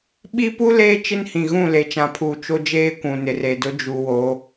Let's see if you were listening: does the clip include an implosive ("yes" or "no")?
yes